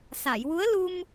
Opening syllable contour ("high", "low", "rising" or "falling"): low